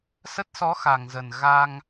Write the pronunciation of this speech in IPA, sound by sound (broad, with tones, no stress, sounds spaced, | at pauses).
s ə˦˥ t̚ s ɔ˨˦ x a˨˩ ŋ z ə˨˩ n ɣ a˧ ŋ